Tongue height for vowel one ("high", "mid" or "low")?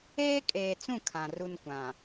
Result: mid